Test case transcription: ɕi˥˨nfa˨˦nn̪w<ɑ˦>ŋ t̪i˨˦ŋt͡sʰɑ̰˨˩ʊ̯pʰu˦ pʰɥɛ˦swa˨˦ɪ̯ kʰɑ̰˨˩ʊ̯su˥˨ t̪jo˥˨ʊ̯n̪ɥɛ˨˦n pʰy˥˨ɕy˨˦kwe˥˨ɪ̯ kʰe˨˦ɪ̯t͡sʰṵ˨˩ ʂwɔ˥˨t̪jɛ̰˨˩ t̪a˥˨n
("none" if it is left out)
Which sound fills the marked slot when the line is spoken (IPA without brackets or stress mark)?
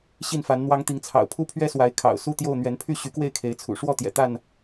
ɑ˦